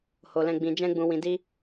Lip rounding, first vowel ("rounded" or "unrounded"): rounded